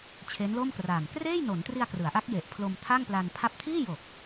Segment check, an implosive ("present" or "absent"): absent